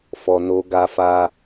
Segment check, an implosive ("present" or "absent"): absent